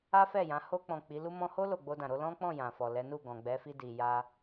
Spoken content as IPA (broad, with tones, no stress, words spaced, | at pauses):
a˦fɛ˦˨jã˨˦ ho˧k͡pɔ̃˨ k͡pi˨˦lu˦ mɔ̃˧ho˦ lo˦˨ ɡ͡bo˧dã˨ ɾo˧lɔ̃˦ k͡pɔ̃˦˨jã˨fɔ˨ lɛ˨˦nu˦˨ɡɔ̃˨ ɡ͡bɛ˨˦fi˧di˨ ja˧